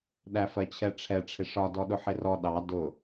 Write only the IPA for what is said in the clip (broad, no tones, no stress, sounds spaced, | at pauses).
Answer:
ɗ æ f ɜ t͡ɕʰ ɛ ʈ͡ʂʰ ɛ ʈ͡ʂʰ ɪ ʂ ɒ d ɔ ɗ ʊ ħ ɪ r ɔ ɗ ɑ d ʊ